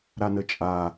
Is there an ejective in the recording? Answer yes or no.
yes